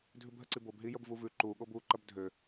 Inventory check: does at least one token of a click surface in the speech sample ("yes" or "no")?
yes